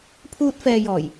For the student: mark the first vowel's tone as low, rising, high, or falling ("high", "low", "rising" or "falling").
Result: high